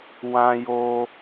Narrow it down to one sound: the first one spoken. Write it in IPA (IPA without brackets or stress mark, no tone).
w